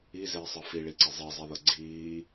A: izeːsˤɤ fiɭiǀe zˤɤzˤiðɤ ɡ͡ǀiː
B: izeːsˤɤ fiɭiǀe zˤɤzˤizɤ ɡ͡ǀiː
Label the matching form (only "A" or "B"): A